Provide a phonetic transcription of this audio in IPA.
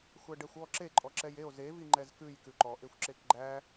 xʷ æ ɖ ɛ xʷ ɔ ǁ e ǃʼ ɔ ǁ ɛ j e o̯ z e v i ŋ͡ǃ ɛ z k ʉ j k ʉ ǃ ɔ ʔ e xʷ ǁ e k ɡ͡ǃ æ

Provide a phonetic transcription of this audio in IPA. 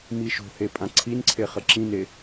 m i ʃ o̤ h e pʼ ã ǀʰ i n ǀʰ e χ ə ǁ ĩ n e

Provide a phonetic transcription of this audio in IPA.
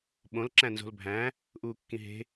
ɓ õ l ǁ æ̃ n z o̤ l bʱ æ̃ | ʔ uː kː ĩ ɦ e̤

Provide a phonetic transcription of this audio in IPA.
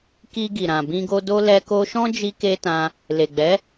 k i˧ ɡ i˨ ɾ ã˨ b ĩ˧ ɡ o˧ d o˧ l ɛ˧ k o˧ ʃ ɔ̃˦ d͡ʒ i˦ k e˦ t ã˧ | l e˨ ɡ͡b ɛ˨˦

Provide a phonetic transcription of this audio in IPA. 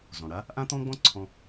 z ɔ̃˩ ɽ a˧˥ | ʔ ã˥ t̪ ɔ̃˥ ɡ͡b ɔ̃˥ ǀʰ ɔ̃˧

